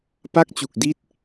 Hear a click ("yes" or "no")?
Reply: no